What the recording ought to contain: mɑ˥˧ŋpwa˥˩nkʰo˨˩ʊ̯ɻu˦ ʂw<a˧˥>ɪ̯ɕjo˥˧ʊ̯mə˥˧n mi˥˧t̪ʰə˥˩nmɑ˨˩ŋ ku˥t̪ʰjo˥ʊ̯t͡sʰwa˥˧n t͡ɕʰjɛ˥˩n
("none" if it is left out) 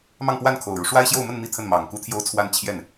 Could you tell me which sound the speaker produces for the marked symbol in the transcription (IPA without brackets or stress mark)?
a˥